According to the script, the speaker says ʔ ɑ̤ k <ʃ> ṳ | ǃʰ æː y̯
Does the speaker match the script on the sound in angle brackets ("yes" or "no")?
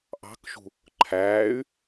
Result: yes